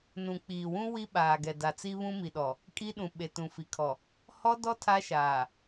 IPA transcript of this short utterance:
n ũ˨ k͡p iː˨ w ũ˦ w i˦ ɓ aː˨ ɡ ɛ˨ d a˨ t͡s i˦ β ũ˦ m i˨ ɗ ɔ˨ | kʼ i˦ ɗ ũ˨ ɓ e˨ t ũ˨ f i˨ kʰ ɔ˨ | h ɔ˦ d ɔ˦ tʰ a˦ ʃ aː˨

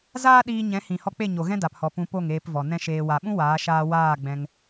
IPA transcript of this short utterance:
z aː˦ ɗ iː˧ ɲ ɛ̃˨˦ h ĩ˨ h ɔ˧ k͡p e˦˨ ɲ o˨ ɣ ɛ̃˦ d a˨ p h ɔ˨ p ũ˨ p o˦˨ ŋ eː˧ p v ɔ˨ n ɛ̃˧ ʃ eː˨ w a˨ ɓ ũ˦ w aː˨˦ ʃ aː˧ w aː˦˨ ɡ͡b ɛ̃˧ ŋ

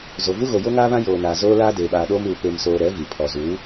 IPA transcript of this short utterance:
z o˨ v u˦ ɣ o˨ j o˦ ŋ aː˦ β ã˦ j oː˨ n aː˨ z oː˦ l aː˦ d eː˨ ɓ aː˨ ɗ oː˦ m uː˨ p e˨ m s oː˨ ɾ ɛ˨˦ v i˨ pʰ ɔ˨ z uː˨˦

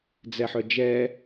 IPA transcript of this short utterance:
d͡z ɛ ħ œ d͡ʒ ɛ

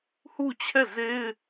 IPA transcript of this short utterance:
h u˦˨ t͡ɕʰ ɛ˦˨ z e˦ ɪ̯

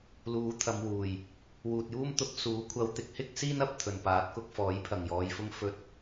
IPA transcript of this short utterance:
l uː˨˥ t̪ʰ ɐ˨˧ m w uː˨ j | w uː˨ t̚ j uː˥ m t̪ ʊ˧ k̚ s uː˨˥ kʷʰ ɐ˧ w t̪ ɪ˨˥ k̚ h ɪ˥ k̚ s iː˥ n ɐ˧ p̚ t̪ʰ ɵ˨ n p aː˨˥ t̚ k ʊ˧ k̚ f ɔː˨˥ j pʰ ɐ˨ ŋ j ɔː˨˧ j f ʊ˥ ŋ f ɵ˧ t̚

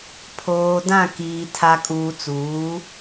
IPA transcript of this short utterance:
pʰ oː˨ d ã˦˨ k iː˨ tʰ a˨ kʼ uː˨ t͡s uː˨˦

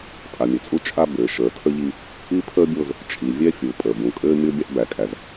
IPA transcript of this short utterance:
tʼ a˨ mʲ ɘ˨ t͡sʼ u˦ t͡ʃʼ a˦ b ɘː˨ ʃ əː˨ tʰ ə˦ ʎ i˦ | i˦ pʰ əː˦ bʲ o˦ z | t͡ʃʼ i˨ vʲ ɛ˦ fʲ u˨ pʼ əː˨ b ũ˨ kʼ ɘː˦ mʲ o˦ bʲ a˦ ʔ b æ˨ kʼ æ˨ z

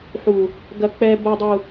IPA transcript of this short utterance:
ħ u˨ | ɡ ɐ˨ k͡p ɛ˨ b o˨ dˤ u˨

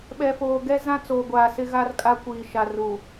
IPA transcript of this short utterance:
ɓ ɛ˨ f oː˨ ɡ ɛ˦ z ã˦ t͡s oː˨ ɡʷ aː˨ s ɪ˦ ɣ a˦ r kʼ a˦ kʷ iː˨ ʃ a˨ r u˨

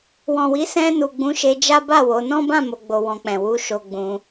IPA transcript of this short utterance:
w ɔ̃˨ w i˨˦ s ɛ̃˧ n u˨ ɡ͡b ũ˨˦ ʃ e˧ d͡ʒ a˦ b a˦˨ w o˨˦ n ɔ̃˦ b ã˦˨ m o˨ ɡ͡b o˨ w ɔ̃˨ k͡p ɛ̃˨ w u˨˦ ʃ o˧ ɡ͡b ũ˧

